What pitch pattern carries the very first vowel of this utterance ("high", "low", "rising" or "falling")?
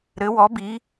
rising